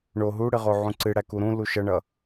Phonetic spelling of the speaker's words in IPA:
ɳ o ɦ u ɽ ɨ ʁ o ʕ ũ ǀ ɨ ɽ æ k u ɾ ũ l u ʃ ʌ ɳ ʌ

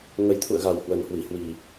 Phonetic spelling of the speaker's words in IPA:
ŋ ə˨˩ j t̪ʰ ṵ˧˨ ə̯ ɣ a˨˩ w h w ə˨˩ n h w i˧˩ h w i˨˩

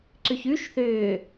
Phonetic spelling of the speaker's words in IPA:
ǀ ʏ ç ʉ ʃ θ ʏː

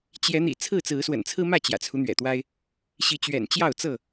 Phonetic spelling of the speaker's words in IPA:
t͡ɕ j ɛ˨˦ n̪ ḭ˨˩ t͡sʰ ɹ̩˥˨ t͡s ɹ̩˨˦ s w ə̰˨˩ n t͡sʰ ɹ̩˦ m ä˥˨ t͡ɕ j ä̰˨˩ t͡sʰ u˦ n̪ ɥ ɛ̰˨˩ t̪ w a˦ ɪ̯ | ɕ i˨˦ t͡ɕ ɥ ɛ̰˨˩ n t͡ɕ j ɑ˥˨ ʊ̯ t͡s ɤ˥˨

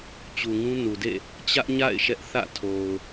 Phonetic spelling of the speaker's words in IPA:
t͡ɕ u˨ ŋ ũ˦ n u˨ d ḛ˦˨ | t͡ɕ ä˦ ʔ ɲ a̰˦˨ ɪ̯ ʃ ɛ˦ ʔ θ ä̰˦˨ tʰ o˨ ʊ̯

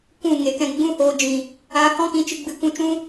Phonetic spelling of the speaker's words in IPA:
kʷ ũ˦˨ ŋ e˨ k ɛ̃˧ ɡ͡b ũ˦ h oː˧ d͡ʒ ĩ˨ | aː˧ h ɔ̃˦ k ĩ˧ t͡ʃ ɨ˧ ɡ͡b ɨ˧ kʷ ũ˧ t͡ʃ ũ˦

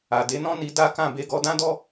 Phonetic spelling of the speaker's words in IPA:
a˨ d e˨˦ n ɔ̃˦ n i˧ d a˦ k ã˦˨ b e˧ ɡ ɔ˧ d ã˦ d ɔ˦

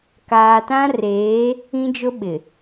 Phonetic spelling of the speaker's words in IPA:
k aː˨ t ã˦ r eː˨˦ | ĩ˦ d͡ʒ ʊ˦ ɓ ɪ˨

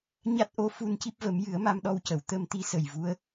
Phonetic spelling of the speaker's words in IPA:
ɲ a˦˥ t̚ ʔ o˧ f u˧ n c i˦˥ p̚ v ə˨˩˦ m j ɨ˨˩˦ ə̯ m a˧ m ɗ ɔ˧ w c ə˨˩˨ w t̪ ə˧ m t̪ i˧˥ s ə˨˩ j v u˧˥ ə̯

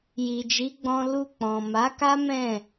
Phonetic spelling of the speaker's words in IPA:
j i˨ d͡ʒ i˨˦ ɡ͡b ɔ̃˧ l u˧ k͡p ɔ̃˨ m a˨˦ k a˦ m ɛ̃˦˨

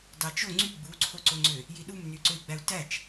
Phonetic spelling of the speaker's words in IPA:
d ɑ t͡ʃ o ŋ͡ǀ y ɡ͡b u ǀʰ o ǀ o ŋ͡ǀ ø | j i ɗ u m n y ǀ ø i̯ ɡ͡b æ u̯ t æ t͡ʃ

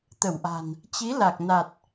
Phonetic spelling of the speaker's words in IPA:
t̪ ə˧˩ w ʔ a̤˨˩ n | t͡ɕ i˨˦ l a˨˩ k̚ n a˨˩ t̚

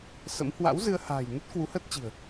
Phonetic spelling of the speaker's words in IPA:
s ə̰˧˥ m h w a̰˧˥ w z ɨ˧ ə̯ h a̤ː˨˩ j n ə˦˥ t̚ k w u˨˦ h əː˦˥ t̚ t͡ɕ i̤˨˩ ə̯

